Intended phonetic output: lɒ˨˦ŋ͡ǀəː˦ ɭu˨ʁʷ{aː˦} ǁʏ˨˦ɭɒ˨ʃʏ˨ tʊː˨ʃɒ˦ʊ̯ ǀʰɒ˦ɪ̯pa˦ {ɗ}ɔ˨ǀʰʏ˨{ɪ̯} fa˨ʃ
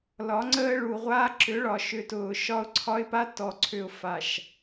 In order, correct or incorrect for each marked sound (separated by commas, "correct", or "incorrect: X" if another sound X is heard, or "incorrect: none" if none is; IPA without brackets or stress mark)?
correct, incorrect: t, incorrect: ʊ̯